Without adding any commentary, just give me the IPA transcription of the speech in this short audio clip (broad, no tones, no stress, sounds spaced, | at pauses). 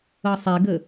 ɤ sˤ e ɡ ə